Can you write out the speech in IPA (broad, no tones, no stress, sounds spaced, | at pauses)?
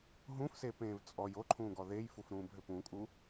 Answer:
ɦ ũ f s eː p ẽː v t͡sʼ ɔ j o ǃʰ ũː ɡ ɔ ð e j f u f ɾ ũː b ɦ ʏ p ũ kʼ u